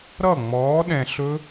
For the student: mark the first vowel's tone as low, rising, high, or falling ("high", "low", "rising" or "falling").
falling